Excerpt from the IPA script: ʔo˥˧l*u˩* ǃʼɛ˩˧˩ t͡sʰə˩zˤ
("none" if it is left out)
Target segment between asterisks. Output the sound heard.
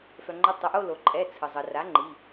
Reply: o˩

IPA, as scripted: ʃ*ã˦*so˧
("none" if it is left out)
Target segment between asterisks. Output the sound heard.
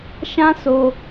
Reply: ã˦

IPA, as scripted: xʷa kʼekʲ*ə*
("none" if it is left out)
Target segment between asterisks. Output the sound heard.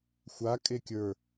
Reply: ə˞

